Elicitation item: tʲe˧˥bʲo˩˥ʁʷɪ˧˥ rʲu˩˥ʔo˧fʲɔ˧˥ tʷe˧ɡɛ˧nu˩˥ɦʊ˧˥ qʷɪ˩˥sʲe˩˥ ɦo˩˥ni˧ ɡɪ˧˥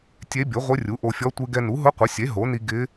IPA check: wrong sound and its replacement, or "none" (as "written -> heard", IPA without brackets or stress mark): none